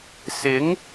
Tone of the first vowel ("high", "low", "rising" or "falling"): rising